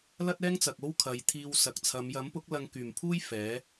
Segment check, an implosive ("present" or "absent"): absent